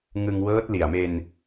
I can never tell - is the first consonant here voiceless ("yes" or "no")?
no